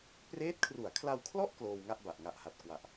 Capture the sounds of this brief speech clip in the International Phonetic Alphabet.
preː˦˥t̚kʰru˩˦a̯kʰla˧wkʰlɔ˥˩ʔ kloː˧wŋa˥˩ʔ ba˨˩ʔŋa˨˩ʔha˨˩t̚kwa˨˩ʔ

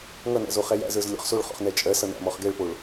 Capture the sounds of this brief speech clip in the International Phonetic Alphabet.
ŋʌnæ̰z oχɛjæ̰zə˞z lʲɔ̰χsoɭχɔ̰χ nɛt͡ʃʼɜsʌ næ̰mɔχɡɛɭpoɭ

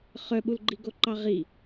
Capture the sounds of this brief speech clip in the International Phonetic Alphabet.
χœɓul ɡ͡ǃiɡoǃɑʁi

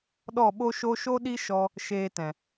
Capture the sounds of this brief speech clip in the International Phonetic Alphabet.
ɗɔ˦˨ɓo˦ʃo˦ ʃo˦ɗi˦ ʃɔ˦ | ʃeː˧tɛ̃˨

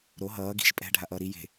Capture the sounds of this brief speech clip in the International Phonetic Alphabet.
ɾo ɦʌː ɡi̤ʃ pʼɛ̤ɖʱaʔʌː ɾi je̤

